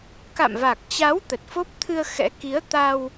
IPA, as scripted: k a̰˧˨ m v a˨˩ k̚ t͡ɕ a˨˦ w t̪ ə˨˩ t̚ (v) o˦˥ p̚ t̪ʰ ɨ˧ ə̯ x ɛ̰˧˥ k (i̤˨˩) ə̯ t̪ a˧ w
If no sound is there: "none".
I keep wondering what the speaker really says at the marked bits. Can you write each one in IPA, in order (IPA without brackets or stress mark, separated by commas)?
f, i˨˦